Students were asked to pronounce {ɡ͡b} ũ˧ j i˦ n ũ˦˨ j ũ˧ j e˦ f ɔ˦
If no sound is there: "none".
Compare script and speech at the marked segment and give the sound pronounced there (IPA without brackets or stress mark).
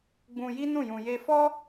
ɡ͡b